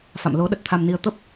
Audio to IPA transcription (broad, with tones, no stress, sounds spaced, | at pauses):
f a̰˧˨ m l o˨˦ ɗ ə˨˩ t̚ t̪ʰ a˧ m n i˧ ə̯ t̪ ə˦˥ p̚